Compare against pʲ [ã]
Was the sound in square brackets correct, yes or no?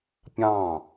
no